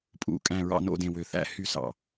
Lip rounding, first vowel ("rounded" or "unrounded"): rounded